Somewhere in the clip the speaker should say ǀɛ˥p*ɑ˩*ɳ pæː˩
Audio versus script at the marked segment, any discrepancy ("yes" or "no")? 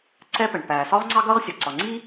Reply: yes